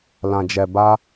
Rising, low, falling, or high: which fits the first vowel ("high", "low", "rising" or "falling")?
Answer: low